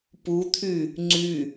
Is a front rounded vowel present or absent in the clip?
present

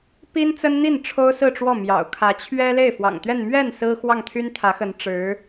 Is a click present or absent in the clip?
absent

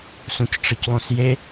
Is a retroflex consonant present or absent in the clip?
present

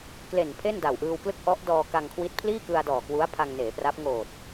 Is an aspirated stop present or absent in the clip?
present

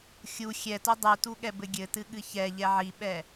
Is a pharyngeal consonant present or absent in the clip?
present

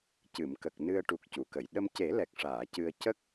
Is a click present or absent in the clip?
absent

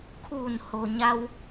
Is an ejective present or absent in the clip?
absent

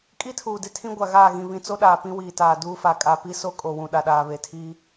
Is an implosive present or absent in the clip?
present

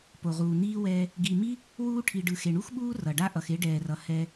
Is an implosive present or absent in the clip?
present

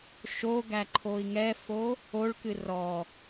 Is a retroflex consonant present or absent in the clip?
present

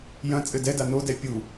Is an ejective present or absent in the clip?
present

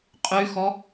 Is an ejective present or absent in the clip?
present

